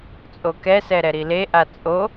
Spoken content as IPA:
t͡sʼ o k ɛ s ɛ ɾ ɛ ɾ i l e ʔ a t͡sʼ o

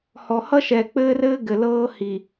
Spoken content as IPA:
h ɔ˨ h ʌ˦ ʃ ɛ˨ k͡p ɘː˦ r ɘː˦ ɡ ɘ˨ l ɤː˦ h i˨

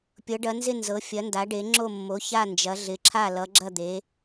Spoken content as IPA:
pʲ ɤ˨˦ ɖ ɐ˨˦ n z ɪ˥˨ n z ɤ˨˦ fʲ ɐ˨˦ n d a˨˦ ɖ e˨˦ ŋ͡ǁ o˥˨ mː o˨˦ ç a˥˨ n d͡ʒ ɐ˨˦ ɮ ɪ˨˦ ǁʰ a˥˨ l ʌ˨˦ ɡ͡ǁ ɐ˥˨ d̪ e˨˦

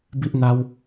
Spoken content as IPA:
b i˦ ʔ n̪ a˦ w

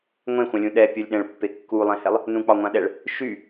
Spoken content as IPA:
ŋʷ ẽ xʷ ã lʲ ũ ɗ ɛ pʲ ɔ lʲ ɗ ɛ̃ ɭ pː e kː u lˠ ɛ̃ h ɛ lˠ | n ũ k͡p ɒ ŋʷ ã ɗ ɛ ɭ | ʃ y

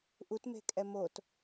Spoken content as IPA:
ʔ u t m e̤ kʼ ɛ m o t

